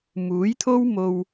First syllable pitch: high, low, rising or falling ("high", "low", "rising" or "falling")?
rising